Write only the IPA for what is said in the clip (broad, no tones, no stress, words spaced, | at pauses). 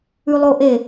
ʉlˠoʔe